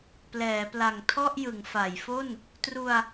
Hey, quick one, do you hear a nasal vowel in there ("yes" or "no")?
no